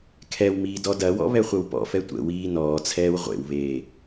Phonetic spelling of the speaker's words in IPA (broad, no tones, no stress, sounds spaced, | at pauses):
kʰ ɛ w m iː d ɔ d ɐ w ɔ̰ β ɛ χʷ ə w p ɔ̰ f ɛ tʷ ə̰ w iː n ɔː t͡sʰ ɛː w ʁʷ ḛ w β eː